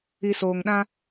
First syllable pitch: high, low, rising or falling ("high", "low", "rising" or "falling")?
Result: low